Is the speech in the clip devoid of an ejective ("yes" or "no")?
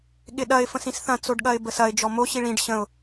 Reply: yes